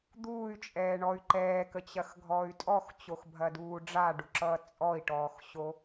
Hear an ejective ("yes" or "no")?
yes